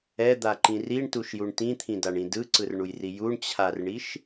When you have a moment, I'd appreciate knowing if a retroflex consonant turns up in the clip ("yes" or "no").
yes